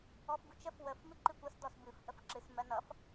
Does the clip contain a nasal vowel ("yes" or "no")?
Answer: no